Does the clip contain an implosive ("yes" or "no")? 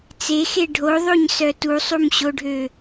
no